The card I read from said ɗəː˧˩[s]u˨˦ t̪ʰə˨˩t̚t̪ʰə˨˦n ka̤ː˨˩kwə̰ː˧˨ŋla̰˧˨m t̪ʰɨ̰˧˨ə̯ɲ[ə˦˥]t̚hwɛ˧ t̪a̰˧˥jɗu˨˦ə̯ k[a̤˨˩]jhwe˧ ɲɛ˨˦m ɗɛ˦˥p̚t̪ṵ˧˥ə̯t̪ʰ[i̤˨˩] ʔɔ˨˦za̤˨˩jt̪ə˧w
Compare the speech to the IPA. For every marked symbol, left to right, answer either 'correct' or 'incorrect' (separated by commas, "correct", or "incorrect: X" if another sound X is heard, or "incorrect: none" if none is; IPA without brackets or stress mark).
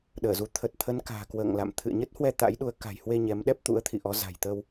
incorrect: z, correct, correct, incorrect: ḭ˧˨